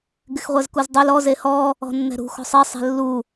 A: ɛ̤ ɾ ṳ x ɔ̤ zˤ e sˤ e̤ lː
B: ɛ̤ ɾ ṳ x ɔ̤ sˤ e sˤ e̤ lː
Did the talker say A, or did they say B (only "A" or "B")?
B